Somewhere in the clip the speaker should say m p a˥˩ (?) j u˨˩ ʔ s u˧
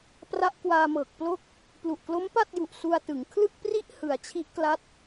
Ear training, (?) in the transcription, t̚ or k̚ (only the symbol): t̚